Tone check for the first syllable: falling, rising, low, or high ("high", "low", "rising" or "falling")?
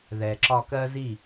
low